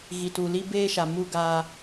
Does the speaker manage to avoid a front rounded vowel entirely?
yes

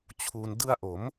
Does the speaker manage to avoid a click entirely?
yes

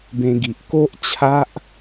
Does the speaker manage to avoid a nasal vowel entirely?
no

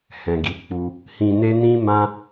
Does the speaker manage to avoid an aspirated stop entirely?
yes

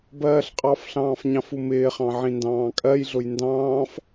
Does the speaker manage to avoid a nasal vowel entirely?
no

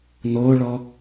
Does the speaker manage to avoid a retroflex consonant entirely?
no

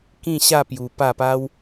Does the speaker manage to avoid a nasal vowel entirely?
no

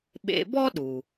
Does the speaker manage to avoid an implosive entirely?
no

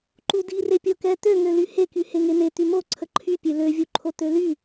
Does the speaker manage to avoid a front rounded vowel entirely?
no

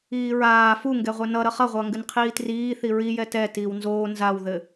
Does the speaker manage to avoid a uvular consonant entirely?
no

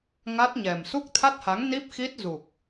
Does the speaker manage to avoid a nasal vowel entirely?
yes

